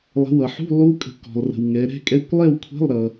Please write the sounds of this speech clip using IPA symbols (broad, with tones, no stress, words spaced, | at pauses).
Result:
lˠə̤˨˦wʌ˨ħṳ˧˥˧ lˠu˦˥kʼə̤˨˦ kɔ̤˨lˠrə̤˨wŋɛ˨˦ɾɛ̤˧˥˧ kʼɛ˧˥˧kʷ lˠɛ˥˨wkʷʰɛ̤˧˥˧lˠɾʌ˨